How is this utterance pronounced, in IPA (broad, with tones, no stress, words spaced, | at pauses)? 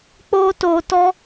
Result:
k͡po˦to˧tɔ˦